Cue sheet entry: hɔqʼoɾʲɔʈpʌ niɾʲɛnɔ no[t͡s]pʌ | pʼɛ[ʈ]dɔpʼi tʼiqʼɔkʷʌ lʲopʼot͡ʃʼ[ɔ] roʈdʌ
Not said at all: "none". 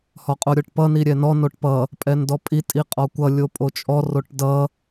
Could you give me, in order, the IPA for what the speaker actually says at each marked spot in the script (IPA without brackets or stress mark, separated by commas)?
ʈ, n, ɔ